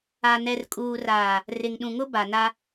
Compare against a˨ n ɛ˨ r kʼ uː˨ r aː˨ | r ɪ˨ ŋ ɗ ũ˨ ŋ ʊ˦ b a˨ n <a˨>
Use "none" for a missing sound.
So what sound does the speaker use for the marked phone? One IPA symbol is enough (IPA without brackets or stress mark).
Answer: a˦